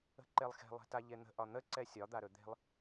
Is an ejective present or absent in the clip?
absent